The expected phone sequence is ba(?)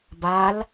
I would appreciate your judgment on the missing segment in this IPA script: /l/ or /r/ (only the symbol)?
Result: l